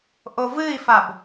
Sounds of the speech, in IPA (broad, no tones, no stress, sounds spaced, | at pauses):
ʔ o v ɨ i̯ f a b